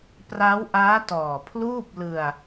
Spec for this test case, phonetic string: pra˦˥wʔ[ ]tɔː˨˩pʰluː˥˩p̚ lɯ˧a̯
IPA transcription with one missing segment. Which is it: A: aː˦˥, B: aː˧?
A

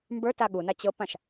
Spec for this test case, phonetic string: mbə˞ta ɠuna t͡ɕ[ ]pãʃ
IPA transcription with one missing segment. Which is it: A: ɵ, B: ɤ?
B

